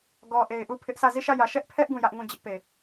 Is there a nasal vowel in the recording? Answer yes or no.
yes